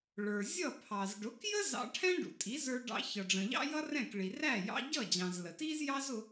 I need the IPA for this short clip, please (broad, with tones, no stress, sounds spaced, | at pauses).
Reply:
ɭ ə˞˩ zʲ ʌ˥˩ pʰ ɑ˩ z ɖ ʊ˩˥ k j ə˥ z ɑ̰˧ ʈʰ ɛ̃˥ ɖ ṵ˩ tʼ i˩˥ z ə˞˧ ɖ ɑ̰˧ ç ʌ˩ ɖ͡ʐ ə̃˩ ʎ ɑ̰˥ j ʌ˥ r ɛ̃˥˩ k ɭ i˩ r æ˥˩ j ɑ̰˧ ɟ ʌ˥˩ d͡ʑ ɑ̃˩ z l ə˩ t i˥ z j ɑ˥ z ʊ˧